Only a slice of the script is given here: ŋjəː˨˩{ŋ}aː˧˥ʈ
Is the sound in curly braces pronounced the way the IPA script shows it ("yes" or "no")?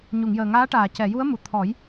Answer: yes